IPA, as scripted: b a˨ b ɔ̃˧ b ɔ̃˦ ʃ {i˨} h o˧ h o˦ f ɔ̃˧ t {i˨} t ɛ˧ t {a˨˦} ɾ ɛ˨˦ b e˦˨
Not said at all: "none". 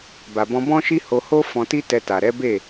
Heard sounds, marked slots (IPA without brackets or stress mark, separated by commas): i˦, i˦, a˨